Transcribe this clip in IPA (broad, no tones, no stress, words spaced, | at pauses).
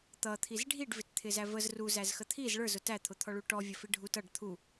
t̪ʌt̪ʰiz ɖʱiɖvɪtt̪ʰɪzæ vəz ruzæzxə t̪ʰiz ɭə˞zʊ tæt̪ʰʊt̪ʰɔɭu ʈɔvʲʌfi ɖʱut ʌɖ t̪ʰu